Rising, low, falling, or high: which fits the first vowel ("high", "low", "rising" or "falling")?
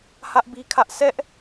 high